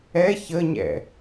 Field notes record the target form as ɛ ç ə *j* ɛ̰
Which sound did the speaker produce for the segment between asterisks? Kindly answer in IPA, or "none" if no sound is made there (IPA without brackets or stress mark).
ɲ